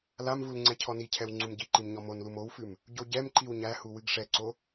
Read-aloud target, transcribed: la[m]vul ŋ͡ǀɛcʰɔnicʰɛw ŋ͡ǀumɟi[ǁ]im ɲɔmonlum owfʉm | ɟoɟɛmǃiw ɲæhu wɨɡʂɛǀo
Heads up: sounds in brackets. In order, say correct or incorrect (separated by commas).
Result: correct, incorrect